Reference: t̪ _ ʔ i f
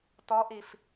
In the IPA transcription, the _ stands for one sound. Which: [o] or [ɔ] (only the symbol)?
ɔ